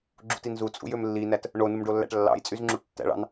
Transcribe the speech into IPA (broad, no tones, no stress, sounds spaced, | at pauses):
ɡ͡ǁ ṵ t i n z u t͡sʼ ṵ j ø m lː i n æ t | ɳ o n u m ɖ o lː æ̰ ʈ lː ɑ̰ j t͡sʼ y z ŋ͡ǁ u ʈ tː æ̰ ɭ ɑ̰ n